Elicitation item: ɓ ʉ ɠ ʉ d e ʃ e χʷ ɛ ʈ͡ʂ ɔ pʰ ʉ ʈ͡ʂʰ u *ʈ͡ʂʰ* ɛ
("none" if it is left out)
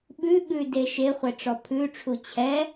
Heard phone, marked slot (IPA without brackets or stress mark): t͡ɕʰ